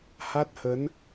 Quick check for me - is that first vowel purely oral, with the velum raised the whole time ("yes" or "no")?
yes